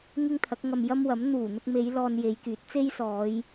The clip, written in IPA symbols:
ŋɪ˥ŋt̪ʰɐ˨˥k̚ŋɐ˧m jɐ˥mwɐ˨˥m n̪uː˨˩n̪ʊ˧k̚me˨˧j lɔː˧nje˨˧jkyː˨˥t̚ t͡se˥jsɔː˨˧j

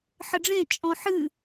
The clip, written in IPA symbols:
ħəɖ͡ʐẽ t͡ʃʼɔ̃ħɨ

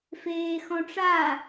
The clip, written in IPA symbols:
feːxɔ̃ʈ͡ʂa

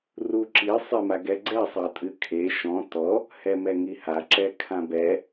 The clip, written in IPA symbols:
ruǁi sˤemaɡɛɡ͡ǀɛ sˤɐtʼɨkʰe ʃɔ̃ tɔ | hɛmɛŋiha ǁɛkʰãbɛ

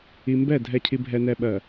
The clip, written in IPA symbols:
i˨mbɛ˦˨ dʱɛ˨cʰi˨ bʱɛ˨nɛ˨ɓɜ˨

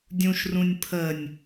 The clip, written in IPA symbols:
dʲũʃ rũnʲpʰənʲ

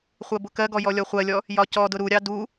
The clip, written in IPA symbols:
χʷɜbʊkɜɡɔ jɔlʲɔχʷɜlʲɔ | jɒcɔdʊ ɾuɾʲɑ du

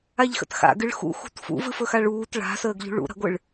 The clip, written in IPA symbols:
aʎxə̰txa̰ ɡɨɭxṵxṳt fṵvɨf ɵxaɭuːt ɭa̤səːɡ ʎṳɭṵɾa̤ɡʷɨɭ

